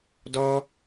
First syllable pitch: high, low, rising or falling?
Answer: high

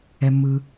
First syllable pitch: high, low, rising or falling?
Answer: low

